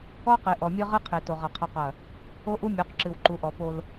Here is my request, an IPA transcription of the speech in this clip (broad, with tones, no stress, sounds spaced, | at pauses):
ɔ˦ q e˨ ʔ ɔ˨ mʲ ɨ˦ ʁ ɨ˦ qʰ e˨ t o˨ ʁ ɐ˨ qʰ ɐ˦ q ɐ˦˨ | o˦ ʔ u˦ mʲ o˨˦ q ǁ ɨ˨ w ǃ u˨ ʔ ɔ˨ p o˦ l